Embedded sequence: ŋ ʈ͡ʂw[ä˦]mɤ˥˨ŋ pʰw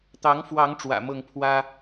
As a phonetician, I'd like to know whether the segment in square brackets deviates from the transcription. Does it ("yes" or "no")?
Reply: yes